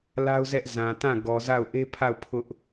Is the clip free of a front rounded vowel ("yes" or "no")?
yes